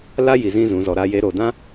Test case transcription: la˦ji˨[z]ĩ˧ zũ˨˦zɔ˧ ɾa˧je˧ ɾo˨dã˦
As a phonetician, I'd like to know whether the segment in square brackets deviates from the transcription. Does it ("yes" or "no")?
no